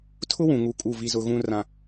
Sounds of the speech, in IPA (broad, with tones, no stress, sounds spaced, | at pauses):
tʰ ʊ˦ w ũ˨ ŋ u˨˦ kʼ u˦˨ v i˦ z ʊ˦ ɣ ũ˦ r ã˦